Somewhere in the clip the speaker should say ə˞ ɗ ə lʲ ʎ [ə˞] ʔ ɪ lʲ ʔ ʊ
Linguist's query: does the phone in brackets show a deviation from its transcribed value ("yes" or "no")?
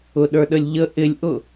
yes